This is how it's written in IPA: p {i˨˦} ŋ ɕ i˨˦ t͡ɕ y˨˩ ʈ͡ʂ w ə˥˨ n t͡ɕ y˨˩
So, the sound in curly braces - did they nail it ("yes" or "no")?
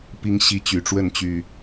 no